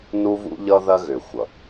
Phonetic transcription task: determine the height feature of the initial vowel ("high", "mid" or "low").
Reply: high